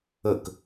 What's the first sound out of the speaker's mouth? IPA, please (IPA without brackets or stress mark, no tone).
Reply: ə